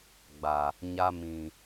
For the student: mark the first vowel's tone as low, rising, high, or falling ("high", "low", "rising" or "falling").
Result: low